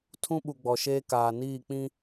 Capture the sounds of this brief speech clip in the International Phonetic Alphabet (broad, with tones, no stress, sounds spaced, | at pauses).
tʰ ũ˦ ɓ u˨ ɡ͡b ɔ˨ ʃ eː˦ k aː˨ n iː˦˨ k͡p ĩ˦